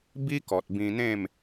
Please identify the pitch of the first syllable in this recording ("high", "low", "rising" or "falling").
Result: high